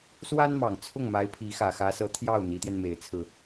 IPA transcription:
s w a˥ n m ɑ˨˩ ŋ t͡sʰ ʊ˥˩ ŋ m a˧˥ ɪ̯ pʰ i˧˥ x ä˨˩ x ä˧˥ s ɤ˧˥ t̪ʰ j ɑ˥˩ ʊ̯ n̪ i˧˥ t̪ j ɛ˧ n m e˧˥ ɪ̯ t͡sʰ ɹ̩˧

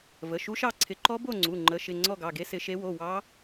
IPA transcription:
v ə˩˧˩ ʃ u˦˥ ʃ ɑ˥˧ ǀʰ ɪ˨˦ ǃ ɔ˦˥ b o˥˧ ŋ͡ǀ u˩˧˩ ŋ͡ǃ ə˨˦ ʃ ɪ˩˧˩ ŋ͡ǀ ɔ˥˧ ɡ ɑ˩˧˩ ɡ e˦˥ s ɪ˨˦ ʃ e˨˦ w o˩˧˩ w ɑ˦˥

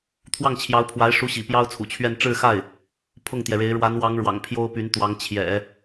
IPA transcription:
t̪ʰ w ɑ˥˩ ŋ t͡ɕʰ j ɑ˧˥ ʊ̯ pʰ w a˧˥ ɪ̯ ʂ u˧˥ ɕ ḭ˨˩ p j ɑ˥ ʊ̯ t͡sʰ ṵ˨˩ t͡ɕʰ ɥ ɛ˥˧ n ʈ͡ʂ ɻ̩˥˧ x a˥˩ ɪ̯ | pʰ ʊ˥˩ ŋ t̪ j ɛ˩ ɻ e˧˥ ɪ̯ ɻ w a˧˥ n w ɑ˧˥ ŋ ɻ w ɑ̰˨˩ ŋ pʰ j o˥ ʊ̯ p y˧˥ n t̪ w ɑ˧˥ ŋ t͡ɕʰ j ɛ̰˨˩˦

